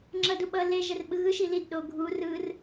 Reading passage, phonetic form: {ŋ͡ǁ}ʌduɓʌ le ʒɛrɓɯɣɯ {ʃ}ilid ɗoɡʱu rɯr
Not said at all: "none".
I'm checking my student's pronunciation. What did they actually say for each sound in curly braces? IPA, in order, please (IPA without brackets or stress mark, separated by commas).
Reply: ŋ͡ǁ, ʃ